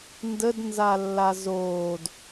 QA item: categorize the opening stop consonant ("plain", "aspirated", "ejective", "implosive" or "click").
plain